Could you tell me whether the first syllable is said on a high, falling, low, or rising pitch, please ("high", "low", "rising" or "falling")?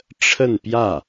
falling